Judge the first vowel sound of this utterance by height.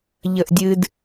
mid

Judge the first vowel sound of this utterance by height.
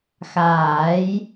low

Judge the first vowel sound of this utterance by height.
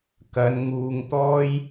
low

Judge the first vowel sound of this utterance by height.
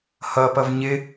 mid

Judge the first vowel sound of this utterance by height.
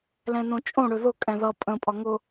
mid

